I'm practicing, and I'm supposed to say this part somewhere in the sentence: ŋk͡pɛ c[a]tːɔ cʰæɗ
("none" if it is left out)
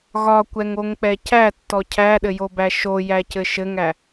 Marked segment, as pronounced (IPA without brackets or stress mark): æ